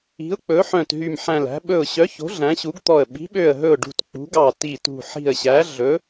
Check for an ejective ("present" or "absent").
absent